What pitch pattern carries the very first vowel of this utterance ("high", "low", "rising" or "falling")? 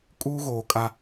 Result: high